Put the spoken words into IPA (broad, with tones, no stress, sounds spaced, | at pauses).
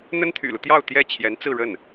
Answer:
n̪ ə˥ n t̪ʰ y̰˨˩ l u˦ t̪ j ɑ˥˧ ʊ̯ t̪ j ɛ˥˩ t͡ɕʰ j ɛ˧˥ n t͡s ɹ̩˥˧ ɻ ə˥˩ n